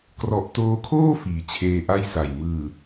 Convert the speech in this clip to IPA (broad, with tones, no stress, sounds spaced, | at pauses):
k r ɔ˨˩ ʔ t oː˧ kʰ oː˥˩ f iː˩˦ t͡ɕʰ eː˧ ʔ a˥˩ j s a˨˩ j m ɯː˨˩